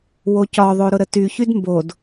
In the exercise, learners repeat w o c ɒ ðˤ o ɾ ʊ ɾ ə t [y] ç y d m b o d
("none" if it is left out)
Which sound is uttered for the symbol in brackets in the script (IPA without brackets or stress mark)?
y